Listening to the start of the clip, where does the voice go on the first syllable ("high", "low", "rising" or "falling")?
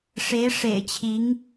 rising